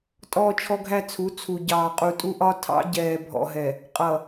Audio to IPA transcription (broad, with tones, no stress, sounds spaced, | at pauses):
tʼ ɔː˦ t͡ʃʰ ɔ˦ ɡʱ æ˦ t͡sʰ u˨˦ t͡sʰ u˨ ɟ ɑː˨ qʼ u˨ tʼ u˦ ʔ ɒ˦ tʰ ɑ̰˦ ɟ ɛː˨ bʱ ɔ̰˨ ɦ ɛ˨ | qʼ ʌ˨